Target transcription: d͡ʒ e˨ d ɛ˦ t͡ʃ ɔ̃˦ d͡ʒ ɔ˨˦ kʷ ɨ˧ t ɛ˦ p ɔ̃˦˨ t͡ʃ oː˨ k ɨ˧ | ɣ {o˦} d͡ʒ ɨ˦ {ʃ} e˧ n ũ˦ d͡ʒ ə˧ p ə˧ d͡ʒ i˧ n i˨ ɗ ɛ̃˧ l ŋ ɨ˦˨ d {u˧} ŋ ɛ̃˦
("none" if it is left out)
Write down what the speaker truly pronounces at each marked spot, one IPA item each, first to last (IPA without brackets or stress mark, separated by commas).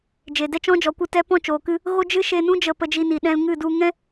o˦, ʃ, u˧